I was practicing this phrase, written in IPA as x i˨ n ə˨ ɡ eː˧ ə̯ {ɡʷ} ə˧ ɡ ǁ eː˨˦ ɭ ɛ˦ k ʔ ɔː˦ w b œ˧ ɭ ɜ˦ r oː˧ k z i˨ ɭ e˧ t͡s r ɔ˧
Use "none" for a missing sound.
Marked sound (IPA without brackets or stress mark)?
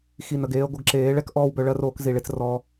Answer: ɡʷ